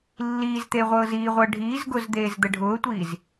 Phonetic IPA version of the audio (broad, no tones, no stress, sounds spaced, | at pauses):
lː iː z t̪ e ʁʷ ɤː z iː ʁʷ ɤ ɖʱ iː z ɡ ʊ z d̪ eː z d̪ ə ɖʱ ʊː tʷ iː z